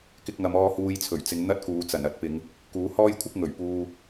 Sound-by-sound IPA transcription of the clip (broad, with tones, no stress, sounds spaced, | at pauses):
k ɪ˧ k̚ ŋ ɐ˨˧ m ɔː˧ h uː˧ j t͡sʰ ɵ˨˩ ɥ t͡s ɪ˨˧ ŋ n̪ ɐ˥ t̚ k uː˨˧ t͡s ɐ˨˩ n ɐ˨˥ t̚ p ɪ˨˧ ŋ | k uː˨˥ h ɔː˥ j kʷʰ ɪ˥ k̚ ŋ ɵ˨˩ ɥ p uː˧